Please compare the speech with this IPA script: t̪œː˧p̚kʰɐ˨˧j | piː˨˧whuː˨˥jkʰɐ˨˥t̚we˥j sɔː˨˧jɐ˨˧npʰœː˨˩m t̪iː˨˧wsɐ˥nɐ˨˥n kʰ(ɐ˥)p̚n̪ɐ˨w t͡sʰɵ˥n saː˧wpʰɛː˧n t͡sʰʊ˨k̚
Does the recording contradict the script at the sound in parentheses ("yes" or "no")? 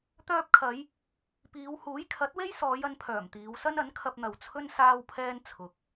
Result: yes